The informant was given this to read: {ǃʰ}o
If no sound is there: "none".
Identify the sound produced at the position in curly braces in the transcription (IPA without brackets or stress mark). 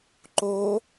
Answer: ǃ